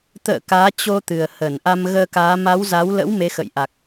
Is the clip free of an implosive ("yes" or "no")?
yes